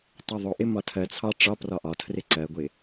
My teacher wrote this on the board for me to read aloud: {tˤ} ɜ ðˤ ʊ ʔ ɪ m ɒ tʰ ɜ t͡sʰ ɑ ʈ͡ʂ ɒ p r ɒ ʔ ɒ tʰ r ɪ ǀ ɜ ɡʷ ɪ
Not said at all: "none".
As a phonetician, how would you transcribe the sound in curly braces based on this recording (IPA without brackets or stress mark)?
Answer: tˤ